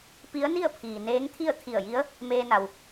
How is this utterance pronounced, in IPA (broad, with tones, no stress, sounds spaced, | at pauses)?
p i˧˥ ə̯ n i˥˨ ə̯ pʰ iː˩ n eː˧˥ ŋ t̪ʰ i˥˨ ə̯ t̪ʰ i˧˩ ə̯ j i˧˥ ə̯ | m eː˧ n a˩ w